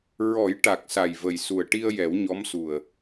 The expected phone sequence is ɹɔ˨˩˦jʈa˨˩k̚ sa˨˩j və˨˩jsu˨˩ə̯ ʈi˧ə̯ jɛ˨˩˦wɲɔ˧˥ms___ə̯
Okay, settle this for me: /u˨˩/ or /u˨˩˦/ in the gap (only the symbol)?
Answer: u˨˩